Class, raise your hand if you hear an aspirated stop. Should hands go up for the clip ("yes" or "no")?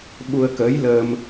no